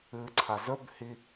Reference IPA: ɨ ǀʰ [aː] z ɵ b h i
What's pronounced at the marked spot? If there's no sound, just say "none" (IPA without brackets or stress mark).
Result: a